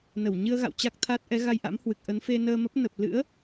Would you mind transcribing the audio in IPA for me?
n ə˧˩ w ɲ ɨ˧ ə̯ ɣ a̰˧˨ w t͡ɕ a˦˥ k̚ t̪ʰ a˦˥ t̚ ʔ ɛ˨˦ ɣ a˧ j ʔ a̰˧˥ m h w ɨ˨˩ k̚ ʔ ə˨˦ n f e˧ n əː˧ m ə˦˥ p̚ n ə˨˩ p̚ l ɨ̰˧˥ ə̯

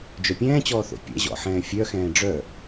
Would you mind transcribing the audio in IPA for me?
d͡ʒ œ pʲ ɛ̃ː t͡ɕ ɔː θ o̰ pʲ ɛ̰ ʑ ɔ̰ ħ ɛ̃ː fʲ œ x ɛ̃ː ɖ͡ʐ œ

